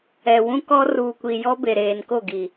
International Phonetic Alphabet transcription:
ɛ˨wũ˦kɔ˦ ruː˨kʷi˨jɔ˦ be˨ɾeː˨nko˦˨ɡi˨

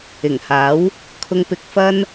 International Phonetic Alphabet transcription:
ɪ˨˩ŋhaː˨˥w | kʰʊ˧ŋpɪ˧k̚fɐ˥n

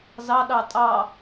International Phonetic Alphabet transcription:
zɑ ɗɑtʼɑ

